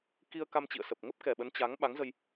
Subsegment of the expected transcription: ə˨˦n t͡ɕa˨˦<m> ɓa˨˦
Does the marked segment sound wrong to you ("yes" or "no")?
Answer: yes